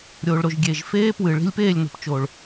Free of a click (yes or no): yes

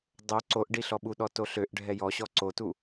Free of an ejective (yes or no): yes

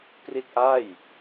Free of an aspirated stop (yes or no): yes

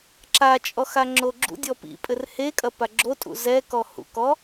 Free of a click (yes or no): no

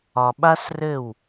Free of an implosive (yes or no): no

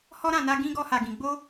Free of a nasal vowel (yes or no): no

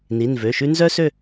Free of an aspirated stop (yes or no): yes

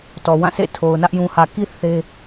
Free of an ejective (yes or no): yes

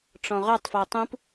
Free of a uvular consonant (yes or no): no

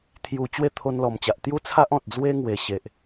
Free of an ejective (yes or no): yes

